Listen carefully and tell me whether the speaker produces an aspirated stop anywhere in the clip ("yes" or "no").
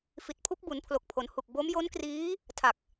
yes